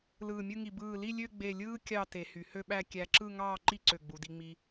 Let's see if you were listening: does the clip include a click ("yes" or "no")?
yes